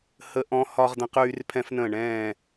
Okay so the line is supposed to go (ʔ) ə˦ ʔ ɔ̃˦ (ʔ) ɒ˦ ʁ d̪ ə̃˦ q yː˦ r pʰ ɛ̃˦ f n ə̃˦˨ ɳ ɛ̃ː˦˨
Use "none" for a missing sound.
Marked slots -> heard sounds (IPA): h, h

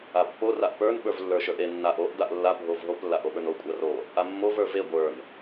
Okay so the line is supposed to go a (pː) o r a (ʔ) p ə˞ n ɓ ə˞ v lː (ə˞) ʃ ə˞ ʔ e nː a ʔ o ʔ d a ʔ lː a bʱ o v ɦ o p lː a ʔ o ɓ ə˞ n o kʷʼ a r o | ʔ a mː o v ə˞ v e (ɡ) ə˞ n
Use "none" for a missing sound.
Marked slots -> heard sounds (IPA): pː, ʔ, ə˞, ɡʷ

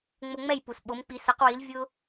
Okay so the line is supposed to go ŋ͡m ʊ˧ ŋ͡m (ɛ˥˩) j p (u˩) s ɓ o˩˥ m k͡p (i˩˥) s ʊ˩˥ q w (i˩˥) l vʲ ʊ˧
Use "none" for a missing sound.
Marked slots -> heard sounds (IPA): ɛ˥˩, u˩, i˩˥, i˩˥

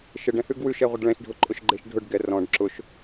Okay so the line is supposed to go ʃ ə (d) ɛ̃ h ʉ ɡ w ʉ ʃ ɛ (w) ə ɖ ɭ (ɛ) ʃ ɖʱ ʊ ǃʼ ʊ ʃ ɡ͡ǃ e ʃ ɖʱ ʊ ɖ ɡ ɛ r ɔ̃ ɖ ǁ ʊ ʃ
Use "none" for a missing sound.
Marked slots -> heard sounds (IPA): ɖ, ʁʷ, ɛ̃

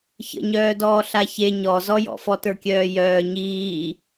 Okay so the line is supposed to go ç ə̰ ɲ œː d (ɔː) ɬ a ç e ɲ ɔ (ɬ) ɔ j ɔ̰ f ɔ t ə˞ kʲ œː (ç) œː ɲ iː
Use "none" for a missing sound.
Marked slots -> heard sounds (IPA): ɔː, z, j

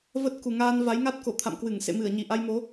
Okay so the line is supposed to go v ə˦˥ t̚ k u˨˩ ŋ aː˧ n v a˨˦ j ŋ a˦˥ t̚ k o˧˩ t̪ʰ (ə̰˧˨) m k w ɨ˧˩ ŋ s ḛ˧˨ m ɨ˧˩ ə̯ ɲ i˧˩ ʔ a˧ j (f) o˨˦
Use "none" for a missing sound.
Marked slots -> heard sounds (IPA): a̰˧˨, m

